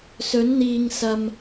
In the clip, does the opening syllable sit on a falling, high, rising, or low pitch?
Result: rising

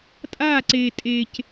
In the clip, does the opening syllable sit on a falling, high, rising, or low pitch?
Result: falling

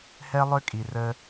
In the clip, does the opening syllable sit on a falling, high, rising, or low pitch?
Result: high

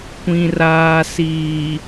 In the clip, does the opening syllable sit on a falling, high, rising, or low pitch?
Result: low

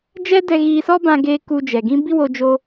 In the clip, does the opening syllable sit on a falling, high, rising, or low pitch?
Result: high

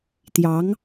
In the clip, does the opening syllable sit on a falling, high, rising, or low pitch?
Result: rising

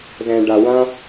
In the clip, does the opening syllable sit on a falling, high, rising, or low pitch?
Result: low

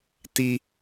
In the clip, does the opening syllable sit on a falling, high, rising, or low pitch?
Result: high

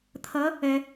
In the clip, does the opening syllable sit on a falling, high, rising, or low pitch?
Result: rising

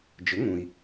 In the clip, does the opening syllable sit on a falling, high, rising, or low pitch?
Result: rising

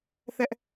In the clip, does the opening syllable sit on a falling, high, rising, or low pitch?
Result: high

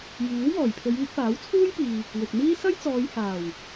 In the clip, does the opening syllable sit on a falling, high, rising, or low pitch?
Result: rising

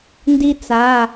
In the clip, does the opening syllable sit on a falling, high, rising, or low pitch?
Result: high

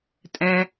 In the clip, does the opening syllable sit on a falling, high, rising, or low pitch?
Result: high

